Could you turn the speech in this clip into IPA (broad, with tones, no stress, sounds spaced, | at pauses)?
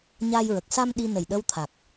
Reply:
ɲ a˧ j ɹ ə˨˩ k̚ s a˧ m ɗ i˧ n ə˨˩ j ɗ ə˧ w t̪ʰ a˨˩ k̚